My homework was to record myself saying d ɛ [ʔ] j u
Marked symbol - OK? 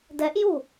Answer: yes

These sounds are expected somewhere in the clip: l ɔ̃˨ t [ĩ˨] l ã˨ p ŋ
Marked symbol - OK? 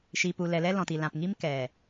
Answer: no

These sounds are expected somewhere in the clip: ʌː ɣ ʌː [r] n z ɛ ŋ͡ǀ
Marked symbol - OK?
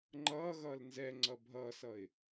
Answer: no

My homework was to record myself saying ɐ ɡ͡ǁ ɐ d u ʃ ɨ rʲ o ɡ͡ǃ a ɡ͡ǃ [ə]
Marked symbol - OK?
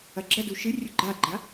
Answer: no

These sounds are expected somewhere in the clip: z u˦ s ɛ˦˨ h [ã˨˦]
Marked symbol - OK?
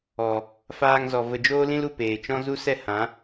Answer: yes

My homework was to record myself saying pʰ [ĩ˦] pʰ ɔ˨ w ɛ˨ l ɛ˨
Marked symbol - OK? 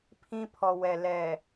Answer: yes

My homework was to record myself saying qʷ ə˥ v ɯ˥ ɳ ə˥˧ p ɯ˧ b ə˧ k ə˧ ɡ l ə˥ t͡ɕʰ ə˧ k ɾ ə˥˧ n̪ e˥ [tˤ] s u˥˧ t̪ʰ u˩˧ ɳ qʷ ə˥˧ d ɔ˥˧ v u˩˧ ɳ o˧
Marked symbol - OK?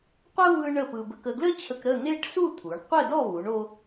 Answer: no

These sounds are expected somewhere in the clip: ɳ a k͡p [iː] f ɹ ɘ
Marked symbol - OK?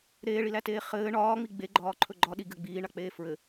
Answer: no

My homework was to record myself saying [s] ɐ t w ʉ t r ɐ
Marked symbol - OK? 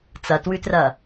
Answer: no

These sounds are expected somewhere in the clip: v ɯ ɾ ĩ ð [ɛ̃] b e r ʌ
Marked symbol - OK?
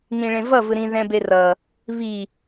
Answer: yes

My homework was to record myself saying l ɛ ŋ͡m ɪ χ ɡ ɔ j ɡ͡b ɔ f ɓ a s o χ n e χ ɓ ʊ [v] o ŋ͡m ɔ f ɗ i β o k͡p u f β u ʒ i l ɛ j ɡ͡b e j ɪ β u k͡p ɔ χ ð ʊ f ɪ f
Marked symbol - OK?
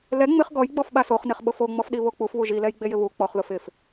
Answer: no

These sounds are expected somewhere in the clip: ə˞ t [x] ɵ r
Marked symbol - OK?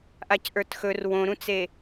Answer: yes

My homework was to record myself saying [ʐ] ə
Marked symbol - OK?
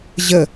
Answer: no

